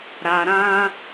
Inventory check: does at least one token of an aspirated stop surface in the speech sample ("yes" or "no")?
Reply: no